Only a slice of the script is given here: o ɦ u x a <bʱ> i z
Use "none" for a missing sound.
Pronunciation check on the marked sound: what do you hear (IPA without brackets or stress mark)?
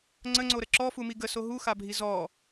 bʱ